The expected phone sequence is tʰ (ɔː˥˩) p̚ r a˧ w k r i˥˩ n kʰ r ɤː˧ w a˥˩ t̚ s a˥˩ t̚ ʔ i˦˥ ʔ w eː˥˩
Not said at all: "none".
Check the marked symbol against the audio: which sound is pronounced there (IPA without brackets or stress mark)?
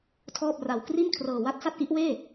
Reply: ɔː˥˩